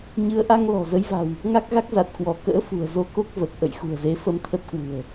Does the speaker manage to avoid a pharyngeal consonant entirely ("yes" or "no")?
yes